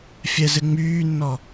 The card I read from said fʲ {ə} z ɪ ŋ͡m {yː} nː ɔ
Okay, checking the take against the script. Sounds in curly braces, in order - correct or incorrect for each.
incorrect: ɛ, correct

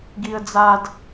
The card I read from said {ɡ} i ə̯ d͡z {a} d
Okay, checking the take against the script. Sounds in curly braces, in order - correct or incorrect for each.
correct, correct

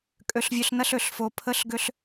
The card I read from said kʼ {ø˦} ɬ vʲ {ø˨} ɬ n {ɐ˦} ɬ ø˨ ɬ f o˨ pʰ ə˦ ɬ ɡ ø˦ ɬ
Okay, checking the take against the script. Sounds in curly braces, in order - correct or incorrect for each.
incorrect: ø˨, correct, correct

